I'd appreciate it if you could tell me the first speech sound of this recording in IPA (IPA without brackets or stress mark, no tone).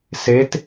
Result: s